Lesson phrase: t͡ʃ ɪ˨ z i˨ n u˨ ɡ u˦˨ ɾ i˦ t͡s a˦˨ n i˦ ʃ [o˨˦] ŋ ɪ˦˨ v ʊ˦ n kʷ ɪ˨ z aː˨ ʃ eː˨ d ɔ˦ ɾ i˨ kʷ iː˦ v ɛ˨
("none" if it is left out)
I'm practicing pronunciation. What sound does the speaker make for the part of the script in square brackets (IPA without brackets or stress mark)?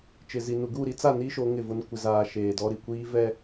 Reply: o˨˦